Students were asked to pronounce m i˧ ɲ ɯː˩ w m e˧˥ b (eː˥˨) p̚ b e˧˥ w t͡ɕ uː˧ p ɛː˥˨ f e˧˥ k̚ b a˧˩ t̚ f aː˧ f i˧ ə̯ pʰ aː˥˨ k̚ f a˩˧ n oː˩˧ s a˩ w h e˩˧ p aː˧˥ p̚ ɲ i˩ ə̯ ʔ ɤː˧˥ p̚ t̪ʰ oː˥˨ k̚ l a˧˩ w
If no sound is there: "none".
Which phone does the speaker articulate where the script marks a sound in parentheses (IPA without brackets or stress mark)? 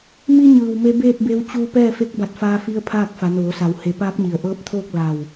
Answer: eː˥˨